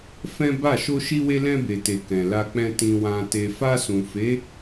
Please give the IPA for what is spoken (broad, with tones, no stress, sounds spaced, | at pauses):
f ɛ̃˦ b a˦˨ ʃ o˧ ʃ i˧ w e˧ l ɛ̃˧ b e˨ t e˨ k ɛ̃˨ l a˧ k͡p ɛ̃˧ t ĩ˨ w ã˨ t e˨ f a˧ s ũ˨ f e˨˦